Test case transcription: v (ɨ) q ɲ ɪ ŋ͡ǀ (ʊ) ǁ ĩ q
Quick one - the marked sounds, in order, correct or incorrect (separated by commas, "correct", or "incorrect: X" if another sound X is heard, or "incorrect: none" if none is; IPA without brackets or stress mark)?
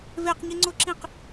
incorrect: e, correct